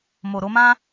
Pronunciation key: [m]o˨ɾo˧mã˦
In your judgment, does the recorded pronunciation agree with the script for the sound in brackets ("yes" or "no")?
yes